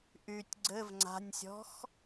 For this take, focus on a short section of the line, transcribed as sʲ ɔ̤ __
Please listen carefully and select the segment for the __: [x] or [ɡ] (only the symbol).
x